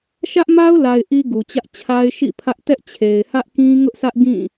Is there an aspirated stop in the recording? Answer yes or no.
yes